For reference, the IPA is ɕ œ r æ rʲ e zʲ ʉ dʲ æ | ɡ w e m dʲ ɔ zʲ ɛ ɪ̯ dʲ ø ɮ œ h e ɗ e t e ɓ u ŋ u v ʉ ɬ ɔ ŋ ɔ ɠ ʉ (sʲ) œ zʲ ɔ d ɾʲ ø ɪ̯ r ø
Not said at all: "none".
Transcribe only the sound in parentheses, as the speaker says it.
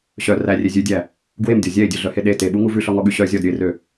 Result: ɕ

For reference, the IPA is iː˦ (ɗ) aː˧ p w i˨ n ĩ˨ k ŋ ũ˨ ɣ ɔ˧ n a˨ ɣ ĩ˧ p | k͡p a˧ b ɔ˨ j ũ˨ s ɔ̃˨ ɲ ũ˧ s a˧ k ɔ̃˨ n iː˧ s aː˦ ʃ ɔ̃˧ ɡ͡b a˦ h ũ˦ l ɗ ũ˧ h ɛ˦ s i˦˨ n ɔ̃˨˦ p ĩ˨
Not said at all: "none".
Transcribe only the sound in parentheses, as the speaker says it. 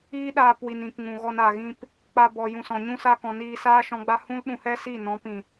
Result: ɗ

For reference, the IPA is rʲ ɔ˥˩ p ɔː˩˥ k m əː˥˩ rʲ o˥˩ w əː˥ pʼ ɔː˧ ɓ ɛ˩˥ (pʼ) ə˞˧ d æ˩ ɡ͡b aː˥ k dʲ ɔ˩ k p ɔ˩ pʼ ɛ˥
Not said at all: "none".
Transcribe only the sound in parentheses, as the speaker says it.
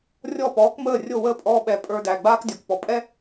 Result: pʼ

